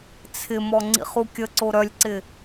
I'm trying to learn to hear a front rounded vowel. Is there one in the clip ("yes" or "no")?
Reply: yes